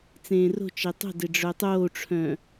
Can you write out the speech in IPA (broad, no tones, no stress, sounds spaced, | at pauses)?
t͡s ẽː r o̤ t͡ʃ e tˤ o̤ d e ɖ͡ʐ œ tˤ oː ʈ͡ʂʰ œ̃